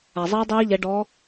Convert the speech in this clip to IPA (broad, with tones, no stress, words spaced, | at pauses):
a˩zˤiː˦˥dˤiː˦˥ʎɛ˨˦ ɖɔ˨˦